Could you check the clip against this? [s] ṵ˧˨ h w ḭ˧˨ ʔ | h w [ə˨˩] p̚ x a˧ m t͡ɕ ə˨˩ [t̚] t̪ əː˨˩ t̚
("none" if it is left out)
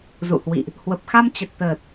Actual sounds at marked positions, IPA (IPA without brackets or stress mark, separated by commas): z, ə˨˩, t̚